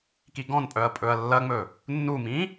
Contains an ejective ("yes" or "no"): yes